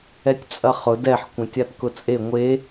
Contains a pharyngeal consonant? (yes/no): yes